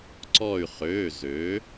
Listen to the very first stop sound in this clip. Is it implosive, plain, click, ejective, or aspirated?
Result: click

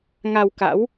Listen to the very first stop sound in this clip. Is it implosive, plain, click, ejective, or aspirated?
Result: plain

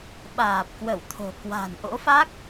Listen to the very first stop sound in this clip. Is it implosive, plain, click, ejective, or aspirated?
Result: implosive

